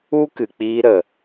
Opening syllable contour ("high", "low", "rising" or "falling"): high